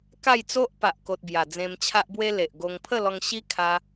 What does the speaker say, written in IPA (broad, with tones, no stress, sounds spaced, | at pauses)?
k a˥˧ j t͡s o˦ ʔ p a˨ ʔ k o˨ t̚ b j a˨˩ d͡z ẽ˧ m t͡ɕʰ a˦ ʔ b w e˦ l e˨ ʔ ɡ o˧ ŋ pʰ ə˥˧ l ɔ˧ ŋ ɕ i˦ kʰ a˧